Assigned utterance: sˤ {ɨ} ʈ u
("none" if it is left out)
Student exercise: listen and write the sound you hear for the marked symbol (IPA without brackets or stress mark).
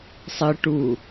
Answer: ɨ